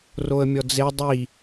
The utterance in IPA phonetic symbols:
r o ə̯ mʲ ɔ d͡z e dˤ i

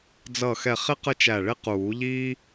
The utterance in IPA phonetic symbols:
d͡z ʌ˧˩ x ɛ˧˩ χ ɪ˥ q ə˥ t͡ʃ æ˧˩ ɭ ɪ˥ q uː˨˩˦ ʎ iː˥

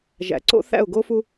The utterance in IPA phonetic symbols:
ʒ æ̰˨ ǀ o̰˦ θ æ̰˦˨ ʊ̯ ɡ o˦ f u˦

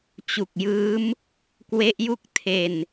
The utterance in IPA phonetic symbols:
t͡ɕ u˨˩ k̚ j ɯː˦˥ m | k w e˦˥ ʔ j u˥˩ k̚ tʰ e˨˩ n

